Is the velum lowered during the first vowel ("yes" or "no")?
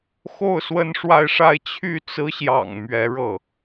no